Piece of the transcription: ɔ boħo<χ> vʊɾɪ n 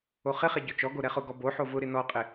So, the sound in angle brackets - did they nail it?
no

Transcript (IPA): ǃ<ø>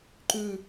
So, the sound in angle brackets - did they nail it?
no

